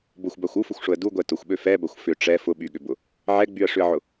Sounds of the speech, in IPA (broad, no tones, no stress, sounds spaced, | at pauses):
b ʊ xʷ b a xʷ u f ʊ xʷ ʂ ʊ ə̯ d u ɡʷ ɛ t ʊ xʷ ɓ ø f ɛ b ɐ xʷ f ʏ ʈ͡ʂ ɛ f ʊ ɓ y ɠ ʏ b ʊ | ʕ ɛ ɡ͡b y ə̯ ʂ ʏ ə̯ ʕ ʊ